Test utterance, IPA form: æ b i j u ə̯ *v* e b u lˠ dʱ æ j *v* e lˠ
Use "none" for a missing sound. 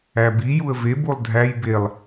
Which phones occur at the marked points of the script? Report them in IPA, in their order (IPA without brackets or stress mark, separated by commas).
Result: v, b